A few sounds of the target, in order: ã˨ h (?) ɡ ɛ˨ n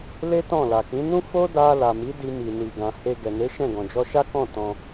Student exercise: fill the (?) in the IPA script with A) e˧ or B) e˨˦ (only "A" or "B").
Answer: A